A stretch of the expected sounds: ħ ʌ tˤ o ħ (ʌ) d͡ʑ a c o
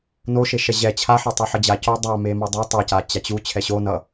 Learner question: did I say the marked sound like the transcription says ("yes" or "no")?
yes